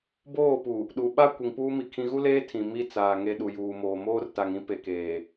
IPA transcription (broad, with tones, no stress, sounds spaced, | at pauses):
b oː˦˨ p u˨ | ɗ u˨ ɓ a˦ kʷ i˨ ŋ p uː˦ m i˨ kʰ ĩ˦ ɣ u˦ l eː˦ tʰ ĩ˨ m i˦ t͡s aː˨ ŋ e˨ ɗ u˨ j uː˨ m oː˨ m oː˦ r t a˨ ŋ ĩ˦ p e˨ k eː˨